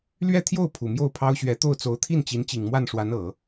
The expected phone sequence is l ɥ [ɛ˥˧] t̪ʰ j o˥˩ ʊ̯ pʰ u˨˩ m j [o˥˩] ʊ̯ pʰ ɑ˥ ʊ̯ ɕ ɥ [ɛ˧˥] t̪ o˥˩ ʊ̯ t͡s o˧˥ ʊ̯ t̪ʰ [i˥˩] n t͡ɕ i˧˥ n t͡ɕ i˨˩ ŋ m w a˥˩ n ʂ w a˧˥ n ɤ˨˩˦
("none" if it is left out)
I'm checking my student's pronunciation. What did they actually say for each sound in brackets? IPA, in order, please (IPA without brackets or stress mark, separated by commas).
ɛ˥˧, o˥˩, ɛ˧˥, i˥˩